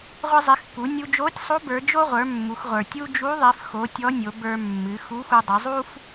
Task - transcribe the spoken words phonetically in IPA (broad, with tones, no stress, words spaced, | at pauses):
ʁʷi˧zˤi˩˧xku˩˧nʲu˧ d͡ʒo˧˥tʲsˤo˧˥ bə˞˩˧d͡ʒo˥ʁʷə˞˩˧ mːu˩˧xʁʷə˞˩tʲu˥ d͡ʒu˧˥ðˤi˩˧fxo˩˧ tʲɔ˧˥nʲo˩˧bə˞˧mːɨ˩˧ xu˧˥xu˧dˤɨ˩˧ zˤu˥f